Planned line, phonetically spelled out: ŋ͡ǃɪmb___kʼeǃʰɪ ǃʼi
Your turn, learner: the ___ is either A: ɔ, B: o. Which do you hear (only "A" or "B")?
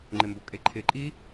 B